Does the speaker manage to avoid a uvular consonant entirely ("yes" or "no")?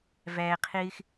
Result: no